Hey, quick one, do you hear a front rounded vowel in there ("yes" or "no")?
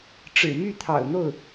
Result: yes